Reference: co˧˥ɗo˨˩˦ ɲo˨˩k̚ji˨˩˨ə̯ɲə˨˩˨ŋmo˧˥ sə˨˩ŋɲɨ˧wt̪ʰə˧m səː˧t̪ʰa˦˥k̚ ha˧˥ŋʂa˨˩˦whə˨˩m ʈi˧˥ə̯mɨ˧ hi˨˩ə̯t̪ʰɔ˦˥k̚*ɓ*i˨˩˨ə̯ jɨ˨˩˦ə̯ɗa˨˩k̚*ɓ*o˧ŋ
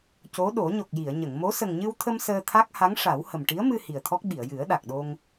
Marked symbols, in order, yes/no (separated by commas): yes, no